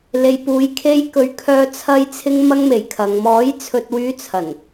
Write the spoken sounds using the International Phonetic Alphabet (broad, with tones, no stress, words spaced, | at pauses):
le˨jpuː˨˧j kʰe˧jkɵ˨˥ɥkʰœː˧ t͡sʰɐ˧jt͡sʰɪ˧ŋ mɐ˧ŋme˨˩j kʰɐ˨ŋmɔː˨˥j t͡sʰɵ˨t̚wyː˨˧ t͡sʰɐ˨˩n